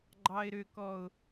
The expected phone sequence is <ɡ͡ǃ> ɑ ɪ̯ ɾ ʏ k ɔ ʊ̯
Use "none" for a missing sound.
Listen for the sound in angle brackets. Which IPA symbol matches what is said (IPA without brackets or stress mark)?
ɡ͡ǃ